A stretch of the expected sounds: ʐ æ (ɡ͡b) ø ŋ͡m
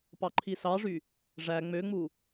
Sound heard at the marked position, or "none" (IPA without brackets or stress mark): ŋ͡m